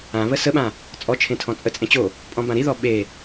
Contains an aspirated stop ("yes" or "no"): yes